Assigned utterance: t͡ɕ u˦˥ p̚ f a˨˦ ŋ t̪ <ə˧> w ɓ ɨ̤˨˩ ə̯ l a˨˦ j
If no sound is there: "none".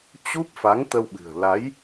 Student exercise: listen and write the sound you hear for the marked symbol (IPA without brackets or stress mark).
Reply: ə˧